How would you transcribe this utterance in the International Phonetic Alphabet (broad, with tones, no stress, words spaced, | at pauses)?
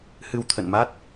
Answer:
hɨ˧wt̪ʰə̰˧˨nma˦˥t̚